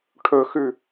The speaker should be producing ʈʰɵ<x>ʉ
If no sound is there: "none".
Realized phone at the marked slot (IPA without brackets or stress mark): x